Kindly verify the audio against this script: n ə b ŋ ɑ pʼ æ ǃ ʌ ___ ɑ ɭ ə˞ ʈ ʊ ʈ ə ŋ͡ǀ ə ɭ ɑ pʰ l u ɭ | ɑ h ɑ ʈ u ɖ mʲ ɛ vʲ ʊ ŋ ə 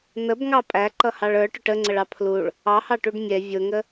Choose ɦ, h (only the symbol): h